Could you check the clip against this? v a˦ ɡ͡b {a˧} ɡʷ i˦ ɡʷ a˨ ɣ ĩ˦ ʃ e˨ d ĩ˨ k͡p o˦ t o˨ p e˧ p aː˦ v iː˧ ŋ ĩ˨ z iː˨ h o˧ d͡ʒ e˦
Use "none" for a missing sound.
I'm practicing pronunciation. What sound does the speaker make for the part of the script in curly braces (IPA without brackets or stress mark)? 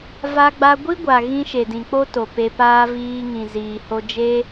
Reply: a˧